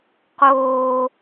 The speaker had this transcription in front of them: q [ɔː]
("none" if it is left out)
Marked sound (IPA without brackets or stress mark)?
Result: oː